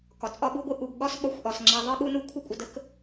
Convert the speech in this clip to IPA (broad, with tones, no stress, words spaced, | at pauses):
kɒ˨t͡sʼɒ˦ɓu˦ɡʷɨ˦ ʔu˨ɡ ɠɒ˦s ɓɒ˨˦xʷʔɒ˨s ŋ͡ǁa˧ðˤɨ˦ɠu˦nu˦ kʷʰə˦kʷʼə˧də˦k